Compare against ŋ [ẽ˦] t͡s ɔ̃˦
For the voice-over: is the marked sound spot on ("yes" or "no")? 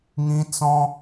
no